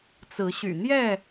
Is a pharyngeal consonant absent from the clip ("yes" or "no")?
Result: yes